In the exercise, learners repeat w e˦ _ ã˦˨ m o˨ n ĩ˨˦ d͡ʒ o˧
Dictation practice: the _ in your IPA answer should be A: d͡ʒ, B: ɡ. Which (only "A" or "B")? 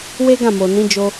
B